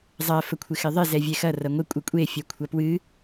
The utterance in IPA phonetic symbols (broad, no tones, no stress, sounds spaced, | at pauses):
zˤ ɐ f ə kʷʰ ɪ x ɪ ðˤ ɪ z ɛ vʲ ɛ x ɐ r ɐ ŋʷ ɪ kʷʼ ɨ kʷʼ e fʲ ɛ kʷʰ ɐ p w ɨ